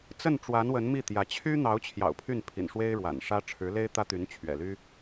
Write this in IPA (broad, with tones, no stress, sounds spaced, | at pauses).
t͡s ə˥˩ n ʈ͡ʂ w a˧˥ n w ə˧˥ n m i˥˩ t̪ j ä˧˥ t͡ɕʰ y˥ n̪ ɑ˧˥ ʊ̯ t͡ɕʰ j ɑ̰˨˩ ʊ̯ pʰ y˥˩ n pʰ ḭ˨˩ n ʂ w e˥ ɪ̯ ɻ w a̰˨˩ n ʂ ä˥ ʈ͡ʂʰ ɻ̩˧˥ l e˥ ɪ̯ t̪ ä˥ t̪ y˧˥ n t͡ɕʰ ɥ ɛ̰˨˩ l y˥